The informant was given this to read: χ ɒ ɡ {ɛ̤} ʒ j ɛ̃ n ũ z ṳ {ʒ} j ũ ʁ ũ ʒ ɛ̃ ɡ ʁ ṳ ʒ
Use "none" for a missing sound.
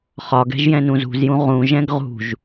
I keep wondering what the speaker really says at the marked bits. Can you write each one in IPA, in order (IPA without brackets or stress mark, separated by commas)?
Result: ɛ̤, z